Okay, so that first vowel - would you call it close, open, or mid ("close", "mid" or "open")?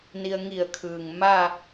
close